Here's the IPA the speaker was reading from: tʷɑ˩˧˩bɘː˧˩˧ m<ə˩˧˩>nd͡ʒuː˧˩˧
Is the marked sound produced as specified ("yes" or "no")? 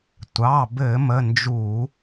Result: yes